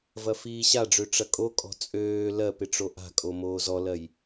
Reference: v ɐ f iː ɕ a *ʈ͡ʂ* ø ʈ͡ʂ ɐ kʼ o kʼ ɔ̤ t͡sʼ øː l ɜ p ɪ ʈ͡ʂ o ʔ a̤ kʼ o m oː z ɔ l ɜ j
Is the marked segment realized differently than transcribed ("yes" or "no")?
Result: yes